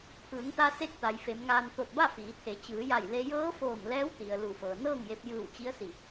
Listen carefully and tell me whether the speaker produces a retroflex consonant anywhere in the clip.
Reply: no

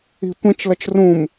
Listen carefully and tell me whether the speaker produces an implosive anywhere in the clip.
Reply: no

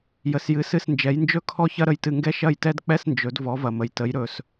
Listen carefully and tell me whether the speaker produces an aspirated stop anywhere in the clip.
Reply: yes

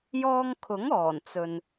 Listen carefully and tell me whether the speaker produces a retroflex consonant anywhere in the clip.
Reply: no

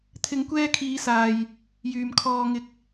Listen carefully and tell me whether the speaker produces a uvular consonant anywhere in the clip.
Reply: no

